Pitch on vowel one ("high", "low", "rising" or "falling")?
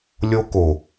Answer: high